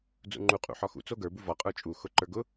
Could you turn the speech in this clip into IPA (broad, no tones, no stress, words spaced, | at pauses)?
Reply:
d͡zṵŋ͡ǃu qʼṵħɒxṵ t͡soɡə˞ buvɒ qʼə˞t͡ʃʼu xʊǃə˞ɡʊ